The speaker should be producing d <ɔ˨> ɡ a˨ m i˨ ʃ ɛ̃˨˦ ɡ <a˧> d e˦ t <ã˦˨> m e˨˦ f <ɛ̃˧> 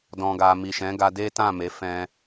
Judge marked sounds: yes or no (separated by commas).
no, yes, yes, yes